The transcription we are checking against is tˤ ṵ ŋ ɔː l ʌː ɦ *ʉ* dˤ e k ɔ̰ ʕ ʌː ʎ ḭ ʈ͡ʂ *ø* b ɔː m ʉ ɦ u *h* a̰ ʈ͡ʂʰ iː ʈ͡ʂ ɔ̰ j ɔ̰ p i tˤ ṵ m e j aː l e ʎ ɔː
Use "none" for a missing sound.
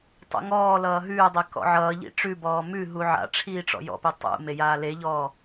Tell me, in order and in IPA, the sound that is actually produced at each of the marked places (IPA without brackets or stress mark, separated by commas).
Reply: ʉː, ʉ, ʕ